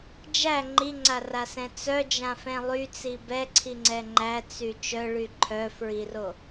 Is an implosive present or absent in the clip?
absent